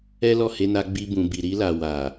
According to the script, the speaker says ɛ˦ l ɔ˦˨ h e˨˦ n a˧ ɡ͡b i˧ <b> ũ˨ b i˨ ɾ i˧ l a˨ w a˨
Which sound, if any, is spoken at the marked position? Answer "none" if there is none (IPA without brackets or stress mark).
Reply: b